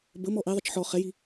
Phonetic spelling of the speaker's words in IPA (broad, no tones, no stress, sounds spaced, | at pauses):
b ə m ɔ ʔ i ðˤ ə t͡ʃ ħ ɔ χ ɛ j i